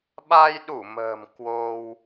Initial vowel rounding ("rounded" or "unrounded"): unrounded